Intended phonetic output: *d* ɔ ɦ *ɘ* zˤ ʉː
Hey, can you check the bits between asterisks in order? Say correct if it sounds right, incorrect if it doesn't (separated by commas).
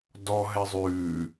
correct, incorrect